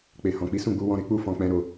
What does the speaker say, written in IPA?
k͡pe˨hɔ̃˨k͡pi˨˦ sũ˦˨ɡ͡bu˨˦ wɔ̃˧ɾe˦ k͡pu˦˨fɔ̃˨k͡pɛ̃˨˦ ɾo˧

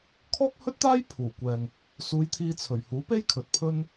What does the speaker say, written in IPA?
kʰɔː˥k̚hɵ˥t̚t̪aː˥j pʰuː˨˩kʷɛː˨ŋ | suː˨˧j t̪ʰiː˧t͡sʰɵ˨˩ɥ huː˨˥pe˥jkʰɵ˨t̚ pʰɵ˥n

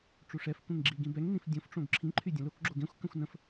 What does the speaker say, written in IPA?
ʈ͡ʂuʂɛfkʷẽŋ ɡ͡ǁiɡĩbɛŋnĩf dʲõfʈ͡ʂõɡ ǁʰĩǃʰy dʲə̃lokɡ͡ǁo ɡẽxʷkə̃xʷ nə̃f

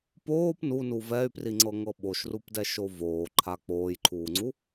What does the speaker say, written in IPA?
poːp nunu vɛy̯priŋ͡ǀɤŋɤ ɓoʃrupdɛʃo voːǃʰa k͡poːjǃʰuːŋ͡ǀu

